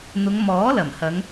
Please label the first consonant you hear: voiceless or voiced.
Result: voiced